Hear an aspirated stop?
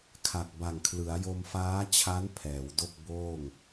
yes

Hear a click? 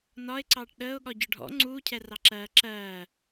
yes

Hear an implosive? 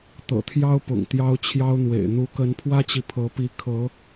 no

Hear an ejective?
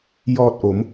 no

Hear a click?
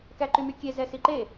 yes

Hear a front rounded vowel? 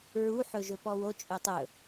yes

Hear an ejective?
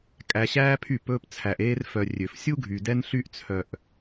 yes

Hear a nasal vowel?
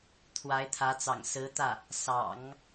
no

